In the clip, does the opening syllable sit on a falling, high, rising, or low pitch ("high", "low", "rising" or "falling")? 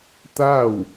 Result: falling